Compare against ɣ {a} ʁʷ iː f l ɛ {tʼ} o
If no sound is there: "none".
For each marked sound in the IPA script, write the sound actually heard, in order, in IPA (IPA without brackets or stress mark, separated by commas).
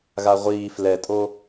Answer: a, tʼ